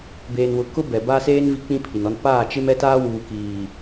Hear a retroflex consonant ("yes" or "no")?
no